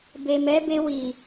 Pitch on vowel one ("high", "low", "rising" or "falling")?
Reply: low